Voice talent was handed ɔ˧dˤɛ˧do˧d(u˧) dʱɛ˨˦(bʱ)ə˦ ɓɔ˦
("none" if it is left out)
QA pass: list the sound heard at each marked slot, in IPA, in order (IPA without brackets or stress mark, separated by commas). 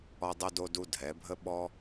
u˧, bʱ